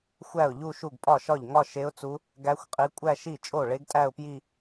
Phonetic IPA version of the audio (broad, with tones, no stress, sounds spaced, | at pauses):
xʷ æ˥˩ ʊ̯ ʎ u˥˧ ʃ u˥˩ ɡ pʼ ɒ˥˩ ʃ ɒ˥˩ ʎ ŋ ɒ˥˧ ʃ e˧˥ ʊ̯ t͡s u˧˥ | ɡ æ˧˥ xʷ qʼ i˧˥ kʷʼ æ˥˧ ʃ i˥˩ t͡ʃʼ o˥˩ ɭ e˧˥ ɡ tʼ æ˥˧ ʊ̯ p j i˥˧